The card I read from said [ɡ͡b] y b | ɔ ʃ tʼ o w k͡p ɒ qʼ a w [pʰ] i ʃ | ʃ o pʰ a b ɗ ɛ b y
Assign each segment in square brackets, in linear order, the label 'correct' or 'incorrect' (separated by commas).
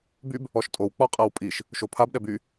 incorrect, incorrect